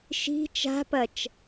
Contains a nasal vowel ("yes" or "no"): no